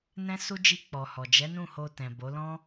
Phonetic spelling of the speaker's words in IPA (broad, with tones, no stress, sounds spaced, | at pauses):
n ɛ̃˦ s u˦ d͡ʒ i˧ k͡p ɔ˨ h ɔ˨ d͡ʒ ɛ˨˦ n ũ˦˨ h o˧ t ɛ̃˨ b o˨˦ l ɔ̃˦